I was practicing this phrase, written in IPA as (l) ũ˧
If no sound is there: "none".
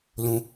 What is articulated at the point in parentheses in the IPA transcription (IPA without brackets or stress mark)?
l